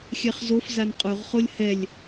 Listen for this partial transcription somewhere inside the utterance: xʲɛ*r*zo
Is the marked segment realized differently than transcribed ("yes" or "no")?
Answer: yes